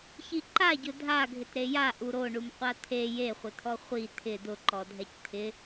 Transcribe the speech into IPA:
ç i ǃ a ɟ ʊ dʱ a ɡʱ ɪ t ɾ e j a ʔ u ɾ o ɳ u m qʷ a t̪ʰ e j e χʷ ɪ t̪ʰ ɔ χʷ i t̪ʰ ɪ d̪ ʊ ǃ ɔ dʱ ɛ c t̪ʰ ɪ

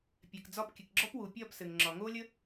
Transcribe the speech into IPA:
pʲ ɛ˩ k d͡z ɒ˥˩ p kʲ ɘ˩ k ɡ͡ǁ ɔ˥ p w u˩ pʲ ɒː˥˩ p s ɘ˩ ŋ ŋ͡ǁ ɒ˩ ŋ oː˥ lʲ ə˥

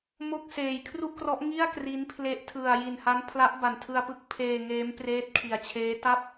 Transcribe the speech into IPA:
m o˥˩ k̚ s eː˨˩ j kʰ r u˥˩ ʔ k r ɔ˦˥ ʔ ŋ i˥˩ a̯ k r i˦˥ n pʰ l e˦˥ ʔ tʰ ɯ˨˩ a̯ j i˨˩ n h a˦˥ n pʰ l a˦˥ ʔ b a˨˩ n tʰ ɯ˧ a̯ p ɯ˦˥ k̚ pʰ eː˧ ŋ eː˦˥ m p r eː˦˥ t̚ kʰ i˨˩ a̯ t͡ɕʰ eː˦˥ t a˥˩ p̚

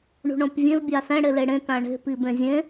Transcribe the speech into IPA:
ɳ ṳ ɳ õ p vʲ ẽ v bʲ a s ɛ̃ ɽ e l e ɽ ẽ t ã ɳ e̤ p i b ẽ zʲ ẽ

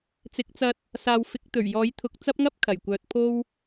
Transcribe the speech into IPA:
t͡s ɪ˨˥ k̚ t͡s ɐ˧ t̚ | s aː˨ w f ɪ˨˥ k̚ t̪ ɵ˨˩ ɥ j ɔː˨˥ j t̪ʰ ʊ˨ k̚ t͡s ɐ˥ p̚ ŋ ɐ˥ p̚ kʰ ɐ˨˩ j kʷ œː˨ t̚ pʰ o˥ w

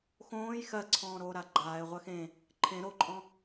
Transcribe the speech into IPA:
x õː j x ɜ ǀʰ ɔ̃ː ɾ oː ɾ a ɡ͡ǃ aː ɪ̯ ʁʷ ɜ x ẽ | ǃʰ ẽ ɾ o ǃʼ ɔ̃

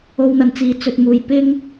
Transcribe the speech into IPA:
o˧ w n̪ ɐ˨ n t͡s iː˨˧ t͡s ɵ˨ t̚ m uː˨ j p ɪ˥ ŋ

